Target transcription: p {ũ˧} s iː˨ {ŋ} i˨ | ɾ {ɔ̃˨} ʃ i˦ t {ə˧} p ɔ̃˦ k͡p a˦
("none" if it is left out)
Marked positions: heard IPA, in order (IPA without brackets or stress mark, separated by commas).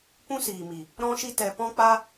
ũ˦, m, ɔ̃˦, ɛ˧